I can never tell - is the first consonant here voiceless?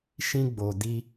yes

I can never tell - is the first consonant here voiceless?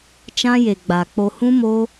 yes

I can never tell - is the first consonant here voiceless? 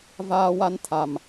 no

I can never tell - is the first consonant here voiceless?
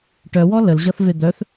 yes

